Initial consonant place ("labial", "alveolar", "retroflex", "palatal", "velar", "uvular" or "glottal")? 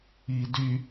alveolar